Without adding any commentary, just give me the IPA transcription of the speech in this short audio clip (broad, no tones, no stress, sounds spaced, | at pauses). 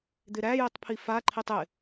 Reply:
d̪ ɪ ɾ æ j i tˤ pʰ i f a ǃʰ i tˤ ɪ